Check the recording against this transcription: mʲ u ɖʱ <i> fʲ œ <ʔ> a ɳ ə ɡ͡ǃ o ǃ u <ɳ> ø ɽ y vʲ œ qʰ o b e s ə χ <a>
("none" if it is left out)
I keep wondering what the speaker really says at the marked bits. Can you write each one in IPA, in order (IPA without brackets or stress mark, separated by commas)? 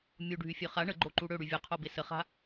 y, χ, ɽ, a̤